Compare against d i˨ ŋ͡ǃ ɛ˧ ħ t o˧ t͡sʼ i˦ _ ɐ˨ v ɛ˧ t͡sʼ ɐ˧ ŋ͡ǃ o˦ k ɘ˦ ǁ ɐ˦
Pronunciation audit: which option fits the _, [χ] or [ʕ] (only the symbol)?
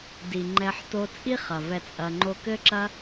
χ